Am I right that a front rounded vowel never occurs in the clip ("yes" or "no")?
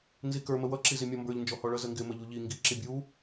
yes